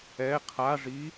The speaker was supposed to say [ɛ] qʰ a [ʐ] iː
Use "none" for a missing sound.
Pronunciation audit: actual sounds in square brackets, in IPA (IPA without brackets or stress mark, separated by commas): ɛ, ʐ